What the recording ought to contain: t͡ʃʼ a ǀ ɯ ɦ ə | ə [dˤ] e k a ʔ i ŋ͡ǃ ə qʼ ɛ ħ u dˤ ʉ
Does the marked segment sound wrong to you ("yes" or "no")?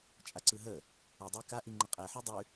no